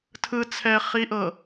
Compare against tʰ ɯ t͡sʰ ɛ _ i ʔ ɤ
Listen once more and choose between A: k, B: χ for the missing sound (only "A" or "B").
B